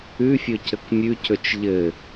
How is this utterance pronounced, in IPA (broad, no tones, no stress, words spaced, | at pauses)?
ʉfʲɵ cəkmʲʉcɵt͡ʃ ʎɘ